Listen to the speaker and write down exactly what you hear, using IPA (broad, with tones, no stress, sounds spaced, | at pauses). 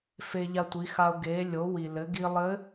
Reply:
f e˧ ʎ a˧ tʷ i˩˧ x a˧ ʊ̯ ɡ e˩˧ lʲ o˩˧ w i˩ l ɘ˩˧ ɡ i˧ lˠ ɘ˧˥